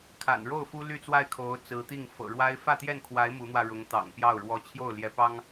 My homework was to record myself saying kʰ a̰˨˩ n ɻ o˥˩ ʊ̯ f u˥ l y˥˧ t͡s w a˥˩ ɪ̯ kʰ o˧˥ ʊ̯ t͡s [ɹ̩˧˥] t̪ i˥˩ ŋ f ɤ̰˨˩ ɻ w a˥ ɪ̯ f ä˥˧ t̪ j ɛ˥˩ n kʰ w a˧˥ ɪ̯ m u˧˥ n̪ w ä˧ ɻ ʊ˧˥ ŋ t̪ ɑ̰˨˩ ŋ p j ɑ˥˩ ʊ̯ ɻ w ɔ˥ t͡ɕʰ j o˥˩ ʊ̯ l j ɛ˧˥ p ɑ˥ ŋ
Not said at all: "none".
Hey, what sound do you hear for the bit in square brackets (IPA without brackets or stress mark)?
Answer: ɹ̩˧˥